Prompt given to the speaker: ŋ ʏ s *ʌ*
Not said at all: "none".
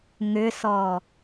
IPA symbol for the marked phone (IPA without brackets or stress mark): ɔ